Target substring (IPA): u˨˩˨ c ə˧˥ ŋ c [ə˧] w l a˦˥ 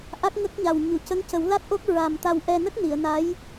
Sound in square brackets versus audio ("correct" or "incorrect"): incorrect